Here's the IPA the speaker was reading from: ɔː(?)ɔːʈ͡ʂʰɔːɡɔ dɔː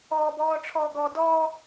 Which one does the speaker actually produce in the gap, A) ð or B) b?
B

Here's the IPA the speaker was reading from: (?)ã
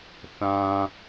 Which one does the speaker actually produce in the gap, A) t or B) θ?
B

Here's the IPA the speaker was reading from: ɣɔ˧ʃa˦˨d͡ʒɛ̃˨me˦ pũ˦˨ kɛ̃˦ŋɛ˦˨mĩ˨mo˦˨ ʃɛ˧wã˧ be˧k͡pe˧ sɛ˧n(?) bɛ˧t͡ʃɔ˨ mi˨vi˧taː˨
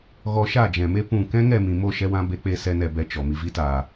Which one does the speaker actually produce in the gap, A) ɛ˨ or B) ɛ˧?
A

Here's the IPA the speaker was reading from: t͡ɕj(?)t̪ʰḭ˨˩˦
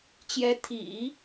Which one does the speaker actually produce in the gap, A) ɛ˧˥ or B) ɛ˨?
A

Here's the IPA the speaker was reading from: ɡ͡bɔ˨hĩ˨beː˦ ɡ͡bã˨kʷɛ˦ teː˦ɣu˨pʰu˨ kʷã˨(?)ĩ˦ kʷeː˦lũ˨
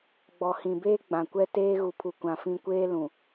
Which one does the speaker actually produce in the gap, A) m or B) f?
B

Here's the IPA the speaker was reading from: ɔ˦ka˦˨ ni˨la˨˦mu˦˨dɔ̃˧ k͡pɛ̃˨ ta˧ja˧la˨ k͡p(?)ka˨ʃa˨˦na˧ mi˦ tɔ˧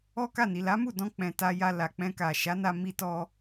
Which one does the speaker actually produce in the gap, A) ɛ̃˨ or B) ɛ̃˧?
B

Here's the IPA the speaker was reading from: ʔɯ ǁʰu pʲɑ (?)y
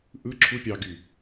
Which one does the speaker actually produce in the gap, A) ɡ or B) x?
A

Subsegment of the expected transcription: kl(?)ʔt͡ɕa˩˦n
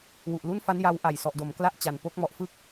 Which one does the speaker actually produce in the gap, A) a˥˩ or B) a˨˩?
A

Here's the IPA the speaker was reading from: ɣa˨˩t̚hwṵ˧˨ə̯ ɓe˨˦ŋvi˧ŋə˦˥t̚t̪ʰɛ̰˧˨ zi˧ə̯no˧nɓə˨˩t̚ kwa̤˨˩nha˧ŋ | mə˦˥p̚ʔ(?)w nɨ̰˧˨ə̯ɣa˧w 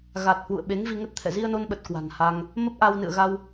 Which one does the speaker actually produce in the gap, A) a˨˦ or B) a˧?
B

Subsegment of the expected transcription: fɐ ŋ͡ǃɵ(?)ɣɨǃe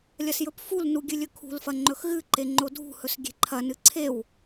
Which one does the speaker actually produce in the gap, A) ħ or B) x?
B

